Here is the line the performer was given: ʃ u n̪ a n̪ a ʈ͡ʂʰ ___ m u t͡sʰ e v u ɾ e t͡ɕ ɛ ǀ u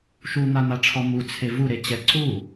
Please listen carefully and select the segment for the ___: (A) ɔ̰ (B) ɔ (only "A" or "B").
B